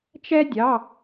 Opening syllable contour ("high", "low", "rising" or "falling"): high